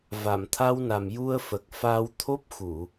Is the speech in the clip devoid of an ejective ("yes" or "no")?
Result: yes